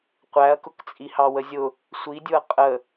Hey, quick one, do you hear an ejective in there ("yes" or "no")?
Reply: yes